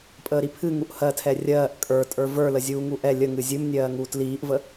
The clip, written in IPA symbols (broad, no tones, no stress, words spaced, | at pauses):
pʼəːɾipʰɨ ŋuʔhɜtʰɛ rʲɜːʔ kʼə˞ tʼə˞və˞ləzʲuː ŋuʔɛ lʲə ŋɨzʲɨmnʲɜː ŋuːtliːʔvə